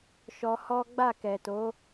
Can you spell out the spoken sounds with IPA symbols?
ʃ ɔ˧ h ɔ˦ ɡ͡b a˦˨ k ɛ˨ t o˨˦

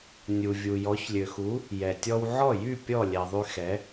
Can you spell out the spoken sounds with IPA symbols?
nʲ u˩ vʲ u˩ j ɔ˩˥ ç lʲ ø˩ x u˩˥ | j ɛ˩ tʲ ɔ˧ w ʕ ɔ˥˩ j y˥˩ pʲ ɔ˥˩ lʲ ɛ˩ ðˤ y˧ x ɛ˩˥

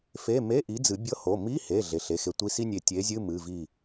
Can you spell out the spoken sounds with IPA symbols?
f e˧˥˧ m e˧˥˧ ʔ i˨˥ d͡z ɨ˨˩˦ bʲ ɤ˧˥˧ h o˩˧˩ m i˧˥˧ h e˩˧˩ ɮ e˩˧˩ ɬ e˩˧˩ x e˨˥ tʷ i˧˥˧ s i˥ nʲ e˧˩ tʲ e˨˥ zʲ ɨ˧˥˧ m ɨ˩˧˩ v i˧˩

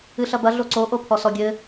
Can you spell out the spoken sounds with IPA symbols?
ɨ ɬ ɐ b ɐ ɮ o ǀ o ʔ o pʰ ɔ s ɔ ɡʲ ɘ

